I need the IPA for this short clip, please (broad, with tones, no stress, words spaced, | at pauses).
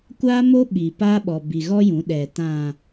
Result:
kʷaː˦mo˦ ɓi˨pa˦ɓɔ˨ bi˨ɣɔ˦ jũ˨˦ɗɛ˨ tã˨